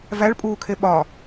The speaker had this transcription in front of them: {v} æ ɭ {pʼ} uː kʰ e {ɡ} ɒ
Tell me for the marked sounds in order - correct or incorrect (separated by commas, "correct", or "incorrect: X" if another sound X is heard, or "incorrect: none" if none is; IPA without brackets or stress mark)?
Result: correct, correct, incorrect: ɓ